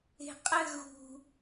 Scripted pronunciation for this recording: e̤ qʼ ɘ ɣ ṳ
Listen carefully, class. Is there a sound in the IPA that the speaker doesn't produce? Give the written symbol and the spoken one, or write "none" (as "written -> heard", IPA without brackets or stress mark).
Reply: none